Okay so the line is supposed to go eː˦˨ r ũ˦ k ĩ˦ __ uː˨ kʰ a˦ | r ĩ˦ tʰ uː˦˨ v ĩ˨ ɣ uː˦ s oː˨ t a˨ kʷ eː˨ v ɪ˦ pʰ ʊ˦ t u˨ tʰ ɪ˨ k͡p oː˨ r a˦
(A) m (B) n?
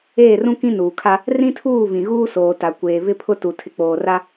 B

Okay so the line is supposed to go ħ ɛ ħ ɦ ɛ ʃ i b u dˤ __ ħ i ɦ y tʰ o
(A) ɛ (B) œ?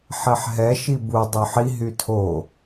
B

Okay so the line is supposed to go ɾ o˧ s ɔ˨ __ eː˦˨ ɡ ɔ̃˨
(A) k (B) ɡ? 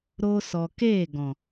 A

